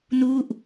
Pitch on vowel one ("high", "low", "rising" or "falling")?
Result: falling